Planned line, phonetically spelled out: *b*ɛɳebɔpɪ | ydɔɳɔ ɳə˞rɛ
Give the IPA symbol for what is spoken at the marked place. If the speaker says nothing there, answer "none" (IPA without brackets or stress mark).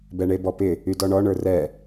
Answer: b